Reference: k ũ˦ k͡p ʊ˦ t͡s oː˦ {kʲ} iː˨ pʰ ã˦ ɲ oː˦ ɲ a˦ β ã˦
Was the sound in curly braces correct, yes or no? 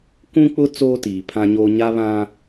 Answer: no